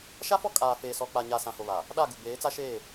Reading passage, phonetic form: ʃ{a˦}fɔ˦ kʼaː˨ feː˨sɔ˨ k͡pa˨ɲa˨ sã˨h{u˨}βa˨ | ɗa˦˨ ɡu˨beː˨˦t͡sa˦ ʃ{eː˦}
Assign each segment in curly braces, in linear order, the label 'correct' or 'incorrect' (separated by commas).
correct, incorrect, incorrect